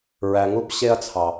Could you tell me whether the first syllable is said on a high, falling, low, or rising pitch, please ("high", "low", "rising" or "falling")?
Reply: low